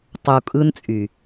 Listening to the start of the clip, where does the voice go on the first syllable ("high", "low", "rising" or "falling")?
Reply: low